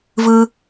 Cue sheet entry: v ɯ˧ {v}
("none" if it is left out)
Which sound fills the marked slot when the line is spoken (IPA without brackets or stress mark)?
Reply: none